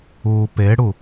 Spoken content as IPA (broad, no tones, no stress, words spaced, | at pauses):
uːpeɽu